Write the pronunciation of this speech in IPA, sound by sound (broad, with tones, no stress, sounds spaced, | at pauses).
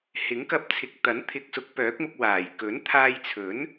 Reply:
h ɪ˨˥ ŋ k ɐ˧ p̚ t͡sʰ ɪ˨˥ k̚ t̪ ɐ˨˥ n t̪ʰ ɪ˨ k̚ s ʊ˨˥ k̚ p œː˨˥ k̚ m ʊ˧ k̚ w aː˨˩ j k ɵ˨˥ n t̪ʰ aː˧ j t͡sʰ ɵ˨˥ n